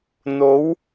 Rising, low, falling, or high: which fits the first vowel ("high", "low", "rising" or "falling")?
rising